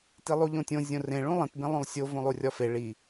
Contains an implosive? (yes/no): no